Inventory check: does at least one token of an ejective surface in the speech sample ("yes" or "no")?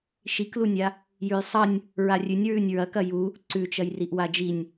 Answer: no